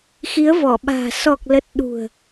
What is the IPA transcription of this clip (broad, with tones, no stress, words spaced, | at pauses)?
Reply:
xi˨˦ə̯vɔ˧˩ɓa̤ː˨˩ sɔ˨˩k̚lə˨˩t̚ ɗṳ˨˩ə̯